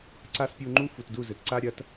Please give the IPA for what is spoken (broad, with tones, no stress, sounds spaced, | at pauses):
ǀ a˦ s pʲ u˧ ŋ͡ǃ u˦ f u˨ t d u˦˨ z ɘ˨ t ǀ a˦ ɾʲ ɐ˨˦ t